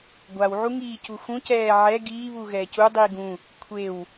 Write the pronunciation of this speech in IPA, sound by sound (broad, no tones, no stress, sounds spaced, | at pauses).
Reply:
ɡʷ a w ʕ u ŋ iː c u x ũ c ɛː ʕ ɛ ɡ iː β u ɣ ɛː c u dˤ iː ɡ ũ | kʷʰ e w